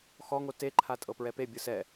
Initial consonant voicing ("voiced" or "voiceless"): voiceless